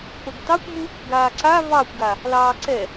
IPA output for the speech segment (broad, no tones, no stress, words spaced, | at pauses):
pəɡtɑkʷmu | ɡaːǀa vɑkʷɡa | lɑːǀɛ